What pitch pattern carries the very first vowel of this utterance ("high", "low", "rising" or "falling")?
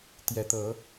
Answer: rising